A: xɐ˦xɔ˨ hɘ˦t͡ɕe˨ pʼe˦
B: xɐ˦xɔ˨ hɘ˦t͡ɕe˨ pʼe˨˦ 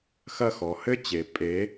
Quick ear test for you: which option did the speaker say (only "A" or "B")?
B